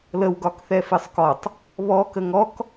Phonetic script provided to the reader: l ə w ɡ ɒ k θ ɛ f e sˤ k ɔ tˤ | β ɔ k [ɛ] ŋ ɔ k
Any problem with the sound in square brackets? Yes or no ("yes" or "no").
yes